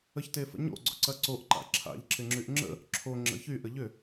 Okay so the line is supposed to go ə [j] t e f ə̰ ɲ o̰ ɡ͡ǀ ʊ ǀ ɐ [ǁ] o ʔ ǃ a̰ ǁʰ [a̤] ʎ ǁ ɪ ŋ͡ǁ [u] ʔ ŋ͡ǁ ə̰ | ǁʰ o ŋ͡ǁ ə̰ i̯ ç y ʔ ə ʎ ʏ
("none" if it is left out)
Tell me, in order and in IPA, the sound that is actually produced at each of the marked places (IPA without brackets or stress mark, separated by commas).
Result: ç, ǀ, a̰, y